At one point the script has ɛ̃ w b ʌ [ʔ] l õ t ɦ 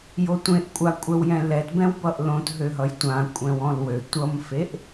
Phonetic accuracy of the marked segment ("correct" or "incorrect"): correct